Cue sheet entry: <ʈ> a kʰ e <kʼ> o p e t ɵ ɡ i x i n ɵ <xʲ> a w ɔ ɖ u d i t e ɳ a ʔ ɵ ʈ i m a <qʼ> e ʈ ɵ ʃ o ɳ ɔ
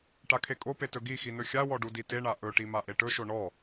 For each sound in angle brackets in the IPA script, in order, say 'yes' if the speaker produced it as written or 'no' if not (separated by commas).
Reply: yes, yes, yes, no